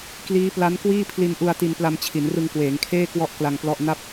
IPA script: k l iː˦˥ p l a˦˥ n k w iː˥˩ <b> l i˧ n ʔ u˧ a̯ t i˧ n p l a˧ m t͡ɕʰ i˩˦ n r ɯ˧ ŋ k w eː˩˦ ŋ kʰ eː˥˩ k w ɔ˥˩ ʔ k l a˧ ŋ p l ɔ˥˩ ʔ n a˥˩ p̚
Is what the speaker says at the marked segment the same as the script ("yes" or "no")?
no